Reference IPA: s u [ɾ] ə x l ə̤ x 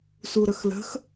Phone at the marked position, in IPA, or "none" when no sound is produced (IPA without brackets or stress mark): ɾ